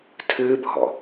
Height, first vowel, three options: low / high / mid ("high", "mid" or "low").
high